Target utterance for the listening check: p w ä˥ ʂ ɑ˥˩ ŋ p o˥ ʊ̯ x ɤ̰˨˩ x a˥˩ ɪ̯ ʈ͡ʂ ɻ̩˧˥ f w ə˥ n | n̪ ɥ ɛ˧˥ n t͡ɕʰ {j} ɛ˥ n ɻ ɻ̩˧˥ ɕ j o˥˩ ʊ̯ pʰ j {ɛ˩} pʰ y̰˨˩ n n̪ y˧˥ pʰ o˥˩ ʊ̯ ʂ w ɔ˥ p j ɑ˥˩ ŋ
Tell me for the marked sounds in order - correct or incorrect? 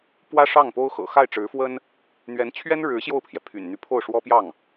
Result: incorrect, correct

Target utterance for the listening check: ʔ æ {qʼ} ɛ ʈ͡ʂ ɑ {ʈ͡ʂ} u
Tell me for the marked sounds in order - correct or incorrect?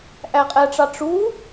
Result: correct, correct

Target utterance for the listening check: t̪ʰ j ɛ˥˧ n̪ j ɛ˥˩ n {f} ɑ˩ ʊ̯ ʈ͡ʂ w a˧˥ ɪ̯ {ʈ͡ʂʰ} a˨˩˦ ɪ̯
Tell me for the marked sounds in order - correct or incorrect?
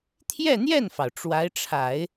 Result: correct, correct

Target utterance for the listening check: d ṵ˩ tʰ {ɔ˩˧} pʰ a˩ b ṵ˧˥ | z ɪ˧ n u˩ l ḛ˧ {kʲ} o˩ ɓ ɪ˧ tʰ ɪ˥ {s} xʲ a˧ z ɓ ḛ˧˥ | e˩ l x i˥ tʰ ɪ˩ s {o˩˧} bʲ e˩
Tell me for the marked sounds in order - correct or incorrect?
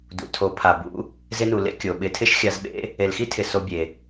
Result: incorrect, correct, incorrect, incorrect

